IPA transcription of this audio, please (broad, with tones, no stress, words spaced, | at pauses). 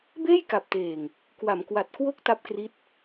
beː˥˩jka˨˩p̚teː˨˩ŋ | kwa˩˦mkwa˨˩t̚ kwo˦˥k̚ ta˦˥p̚kri˦˥t̚